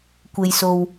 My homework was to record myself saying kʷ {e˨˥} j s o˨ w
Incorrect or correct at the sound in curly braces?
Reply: incorrect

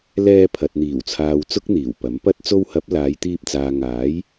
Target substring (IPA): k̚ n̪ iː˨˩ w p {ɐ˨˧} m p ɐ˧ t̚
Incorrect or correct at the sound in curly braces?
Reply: incorrect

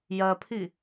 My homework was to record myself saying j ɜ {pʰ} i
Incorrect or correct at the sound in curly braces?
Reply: correct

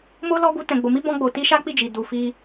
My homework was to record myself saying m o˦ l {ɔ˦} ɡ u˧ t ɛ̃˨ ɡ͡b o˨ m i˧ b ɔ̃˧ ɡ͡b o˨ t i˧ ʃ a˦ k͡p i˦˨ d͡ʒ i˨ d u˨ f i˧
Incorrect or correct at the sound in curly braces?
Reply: correct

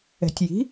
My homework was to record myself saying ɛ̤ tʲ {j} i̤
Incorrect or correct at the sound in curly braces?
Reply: correct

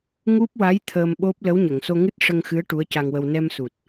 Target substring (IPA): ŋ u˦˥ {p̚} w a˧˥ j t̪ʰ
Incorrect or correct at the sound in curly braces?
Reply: correct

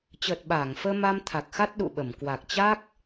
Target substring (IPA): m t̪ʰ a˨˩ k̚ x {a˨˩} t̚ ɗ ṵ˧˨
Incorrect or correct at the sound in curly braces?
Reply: incorrect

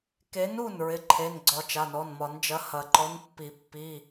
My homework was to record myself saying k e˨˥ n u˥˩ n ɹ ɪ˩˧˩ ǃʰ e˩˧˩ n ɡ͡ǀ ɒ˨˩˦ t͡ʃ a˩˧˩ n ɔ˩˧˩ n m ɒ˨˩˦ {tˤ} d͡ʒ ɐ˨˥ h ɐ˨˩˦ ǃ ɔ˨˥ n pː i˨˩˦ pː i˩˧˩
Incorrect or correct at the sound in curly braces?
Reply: incorrect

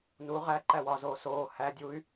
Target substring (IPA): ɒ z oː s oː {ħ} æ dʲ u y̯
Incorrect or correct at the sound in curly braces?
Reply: incorrect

